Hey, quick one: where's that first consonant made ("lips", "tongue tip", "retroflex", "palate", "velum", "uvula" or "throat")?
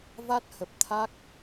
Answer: lips